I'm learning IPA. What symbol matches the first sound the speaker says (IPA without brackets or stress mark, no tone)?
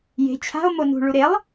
j